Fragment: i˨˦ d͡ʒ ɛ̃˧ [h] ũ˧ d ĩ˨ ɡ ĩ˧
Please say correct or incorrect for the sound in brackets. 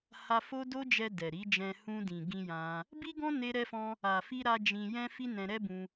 correct